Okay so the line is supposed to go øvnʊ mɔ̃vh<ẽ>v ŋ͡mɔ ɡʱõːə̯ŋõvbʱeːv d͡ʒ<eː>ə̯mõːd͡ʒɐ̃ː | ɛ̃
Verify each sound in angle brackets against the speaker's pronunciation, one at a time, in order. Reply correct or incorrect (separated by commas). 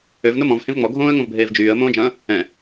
correct, incorrect